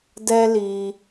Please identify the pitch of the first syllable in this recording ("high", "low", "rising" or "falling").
high